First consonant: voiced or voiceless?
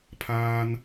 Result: voiceless